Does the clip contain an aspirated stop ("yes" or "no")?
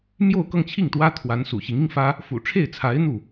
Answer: yes